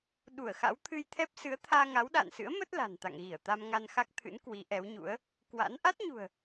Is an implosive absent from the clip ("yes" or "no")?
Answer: no